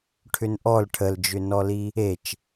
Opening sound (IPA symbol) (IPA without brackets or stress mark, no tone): ʈʰ